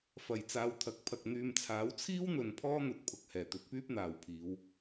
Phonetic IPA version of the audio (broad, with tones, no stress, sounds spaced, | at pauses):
f ɐ˨˩ j t͡s aː˨˧ w t̪ʰ ɐ˨˥ k̚ pʰ ɐ˨ k̚ n̪ yː˨ m t͡sʰ aː˨˥ w t͡sʰ iː˥ w n̪ ɵ˨ n pʰ ɔː˥ n̪ ɵ˨˥ t̚ pʰ ʊ˨ k̚ h ɛː˨˩ t̪ ɵ˨˥ t̚ p yː˥ p̚ n̪ aː˨ w pʰ iː˨˧ w